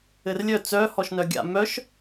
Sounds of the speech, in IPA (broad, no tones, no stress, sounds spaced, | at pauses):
ɘ r lʲ œ t͡s œ h ɔ ʃ n œ ɡʲ a̰ m œ ʃ